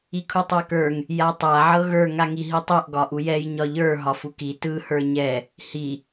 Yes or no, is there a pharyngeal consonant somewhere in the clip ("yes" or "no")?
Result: yes